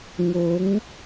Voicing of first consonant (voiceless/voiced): voiced